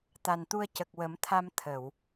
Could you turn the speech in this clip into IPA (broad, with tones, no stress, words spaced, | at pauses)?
t̪a˨˩nt̪u˧ə̯ cə˨˩k̚wə˨˩˦mt̪ʰa˧m t̪ʰə˨˩˨w